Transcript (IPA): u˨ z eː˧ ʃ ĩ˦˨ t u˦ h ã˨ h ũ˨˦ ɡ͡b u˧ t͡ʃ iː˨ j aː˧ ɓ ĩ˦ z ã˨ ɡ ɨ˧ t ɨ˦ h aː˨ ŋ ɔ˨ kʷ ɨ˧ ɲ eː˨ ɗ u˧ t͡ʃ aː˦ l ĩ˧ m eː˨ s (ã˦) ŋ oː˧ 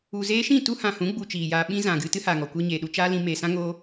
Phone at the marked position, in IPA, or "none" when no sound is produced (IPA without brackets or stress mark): ã˦